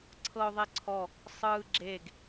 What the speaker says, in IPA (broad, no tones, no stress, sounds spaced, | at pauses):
ǀʰ ɤ ʊ̯ ðˤ e ǀʰ ɔ | sˤ ɯː ɡ͡ǁ e ɡ